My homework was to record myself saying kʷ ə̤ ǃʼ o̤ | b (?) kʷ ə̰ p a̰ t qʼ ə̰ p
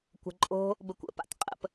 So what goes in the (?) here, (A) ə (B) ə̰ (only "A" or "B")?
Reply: A